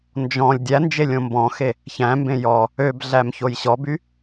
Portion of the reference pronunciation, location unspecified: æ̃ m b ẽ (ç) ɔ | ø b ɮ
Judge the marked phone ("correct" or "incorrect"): incorrect